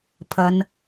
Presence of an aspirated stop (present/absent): present